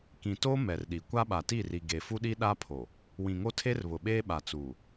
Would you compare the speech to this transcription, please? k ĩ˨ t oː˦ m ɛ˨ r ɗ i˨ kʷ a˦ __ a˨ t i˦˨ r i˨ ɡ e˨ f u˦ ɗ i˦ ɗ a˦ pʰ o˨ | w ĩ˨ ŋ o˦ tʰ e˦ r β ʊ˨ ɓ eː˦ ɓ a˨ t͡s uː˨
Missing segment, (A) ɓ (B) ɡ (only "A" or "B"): A